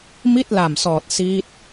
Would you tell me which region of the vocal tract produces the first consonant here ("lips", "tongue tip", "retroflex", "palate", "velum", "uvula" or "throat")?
lips